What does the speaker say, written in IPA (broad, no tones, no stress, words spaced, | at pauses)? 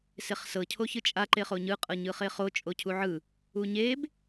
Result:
seχsɤ cʰoçɯt͡ʃʼa ǃeχoɲɯ qʼɤɲɯχeχo t͡ʃʼocʰuʕɯ | uɲeb